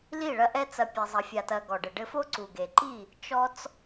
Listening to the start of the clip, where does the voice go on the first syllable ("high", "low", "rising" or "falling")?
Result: falling